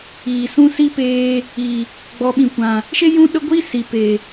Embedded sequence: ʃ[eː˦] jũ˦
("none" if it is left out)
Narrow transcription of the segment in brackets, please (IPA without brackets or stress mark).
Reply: e˦